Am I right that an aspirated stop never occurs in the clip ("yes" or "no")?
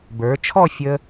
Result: no